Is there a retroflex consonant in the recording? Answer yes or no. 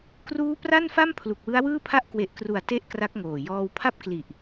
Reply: no